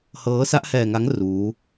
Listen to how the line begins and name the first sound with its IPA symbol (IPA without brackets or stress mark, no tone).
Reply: h